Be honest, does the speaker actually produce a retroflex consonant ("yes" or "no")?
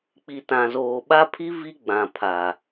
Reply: no